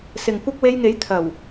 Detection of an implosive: absent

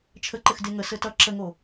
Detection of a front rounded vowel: absent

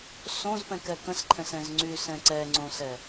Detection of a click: present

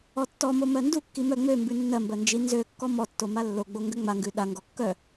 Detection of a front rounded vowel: present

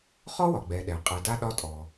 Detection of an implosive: present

